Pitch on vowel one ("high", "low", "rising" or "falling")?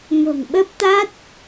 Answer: low